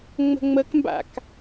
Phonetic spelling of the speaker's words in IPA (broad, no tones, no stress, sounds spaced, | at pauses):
ŋ͡m ə̤ ŋ͡m ə k m b a̰ k